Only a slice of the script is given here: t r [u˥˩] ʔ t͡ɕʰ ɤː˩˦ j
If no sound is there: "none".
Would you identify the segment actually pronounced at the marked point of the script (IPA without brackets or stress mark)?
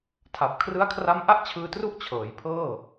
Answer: u˥˩